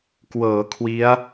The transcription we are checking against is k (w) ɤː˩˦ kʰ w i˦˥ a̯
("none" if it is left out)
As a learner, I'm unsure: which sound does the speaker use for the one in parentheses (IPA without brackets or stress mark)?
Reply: w